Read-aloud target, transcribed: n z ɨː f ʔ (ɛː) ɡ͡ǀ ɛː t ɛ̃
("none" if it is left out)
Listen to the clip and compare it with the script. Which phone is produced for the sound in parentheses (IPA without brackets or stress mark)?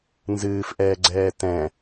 ɛː